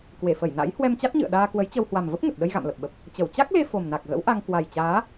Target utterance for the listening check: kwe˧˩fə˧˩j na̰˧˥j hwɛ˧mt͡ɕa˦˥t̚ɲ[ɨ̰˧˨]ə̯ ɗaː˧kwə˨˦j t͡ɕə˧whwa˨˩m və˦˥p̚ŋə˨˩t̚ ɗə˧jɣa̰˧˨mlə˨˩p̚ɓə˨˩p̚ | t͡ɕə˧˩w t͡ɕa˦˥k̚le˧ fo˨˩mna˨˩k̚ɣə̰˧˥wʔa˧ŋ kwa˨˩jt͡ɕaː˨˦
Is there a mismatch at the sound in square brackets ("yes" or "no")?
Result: no